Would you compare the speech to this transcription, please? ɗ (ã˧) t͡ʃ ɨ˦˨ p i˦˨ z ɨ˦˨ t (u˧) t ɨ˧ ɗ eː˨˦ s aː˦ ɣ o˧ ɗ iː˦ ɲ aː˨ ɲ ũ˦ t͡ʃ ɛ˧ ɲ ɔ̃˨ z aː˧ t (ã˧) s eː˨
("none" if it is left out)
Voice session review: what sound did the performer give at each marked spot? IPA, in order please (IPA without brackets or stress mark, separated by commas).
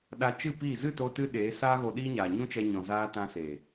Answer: a˧, o˧, ã˧